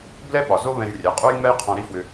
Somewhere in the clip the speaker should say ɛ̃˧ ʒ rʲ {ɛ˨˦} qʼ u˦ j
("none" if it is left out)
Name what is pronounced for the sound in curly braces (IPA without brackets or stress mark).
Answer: ɛ˨˦